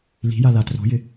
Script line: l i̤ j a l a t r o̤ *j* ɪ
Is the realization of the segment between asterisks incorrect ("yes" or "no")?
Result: no